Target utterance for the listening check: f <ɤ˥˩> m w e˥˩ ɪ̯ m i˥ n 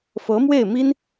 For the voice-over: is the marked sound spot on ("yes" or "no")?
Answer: no